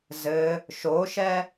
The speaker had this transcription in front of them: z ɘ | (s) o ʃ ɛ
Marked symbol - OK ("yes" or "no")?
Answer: no